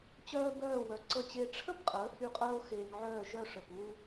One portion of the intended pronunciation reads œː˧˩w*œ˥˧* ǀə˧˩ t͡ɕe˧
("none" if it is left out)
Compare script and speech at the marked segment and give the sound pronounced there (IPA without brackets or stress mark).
œ˩˧